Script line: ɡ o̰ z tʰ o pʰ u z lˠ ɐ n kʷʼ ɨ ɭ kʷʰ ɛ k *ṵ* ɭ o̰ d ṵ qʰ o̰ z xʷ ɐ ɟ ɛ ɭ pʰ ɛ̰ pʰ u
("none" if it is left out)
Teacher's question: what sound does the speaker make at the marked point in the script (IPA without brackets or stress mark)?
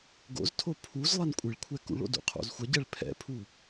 ṵ